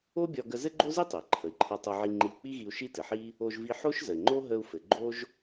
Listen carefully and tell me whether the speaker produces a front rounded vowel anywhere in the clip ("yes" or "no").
no